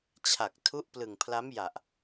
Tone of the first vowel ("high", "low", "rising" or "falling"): low